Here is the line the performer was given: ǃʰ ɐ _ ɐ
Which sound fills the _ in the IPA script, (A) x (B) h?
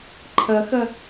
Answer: A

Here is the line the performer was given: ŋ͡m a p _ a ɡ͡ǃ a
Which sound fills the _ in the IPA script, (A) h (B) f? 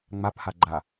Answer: A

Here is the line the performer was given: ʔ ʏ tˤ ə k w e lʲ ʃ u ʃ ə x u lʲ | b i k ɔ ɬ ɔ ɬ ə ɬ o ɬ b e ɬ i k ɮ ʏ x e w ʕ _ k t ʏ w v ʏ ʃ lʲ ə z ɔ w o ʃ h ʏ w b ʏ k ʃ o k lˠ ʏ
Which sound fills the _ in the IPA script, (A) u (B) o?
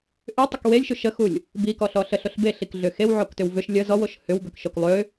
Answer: B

